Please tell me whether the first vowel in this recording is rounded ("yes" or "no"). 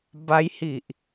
no